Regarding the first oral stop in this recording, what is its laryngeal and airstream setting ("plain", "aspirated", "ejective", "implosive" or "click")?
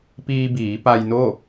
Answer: plain